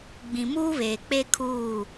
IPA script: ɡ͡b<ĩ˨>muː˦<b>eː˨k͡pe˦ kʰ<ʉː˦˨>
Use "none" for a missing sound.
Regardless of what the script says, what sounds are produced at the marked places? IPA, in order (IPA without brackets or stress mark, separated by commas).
ĩ˨, β, uː˦˨